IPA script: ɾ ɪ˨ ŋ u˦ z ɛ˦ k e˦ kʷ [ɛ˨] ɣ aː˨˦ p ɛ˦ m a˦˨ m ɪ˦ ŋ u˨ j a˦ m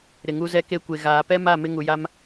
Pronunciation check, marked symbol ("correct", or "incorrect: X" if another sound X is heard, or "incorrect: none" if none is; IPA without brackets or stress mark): incorrect: e˨